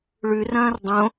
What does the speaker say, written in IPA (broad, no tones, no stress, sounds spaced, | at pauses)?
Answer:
ɭ ʉ r ɐ̃ː r dˤ õ